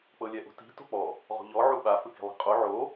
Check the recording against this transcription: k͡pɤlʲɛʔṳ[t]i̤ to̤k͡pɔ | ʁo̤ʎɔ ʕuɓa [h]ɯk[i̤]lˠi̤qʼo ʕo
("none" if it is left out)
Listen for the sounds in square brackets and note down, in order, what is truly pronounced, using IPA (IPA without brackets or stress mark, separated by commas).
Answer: t, f, i̤